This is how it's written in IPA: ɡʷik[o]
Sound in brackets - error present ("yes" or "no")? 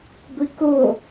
no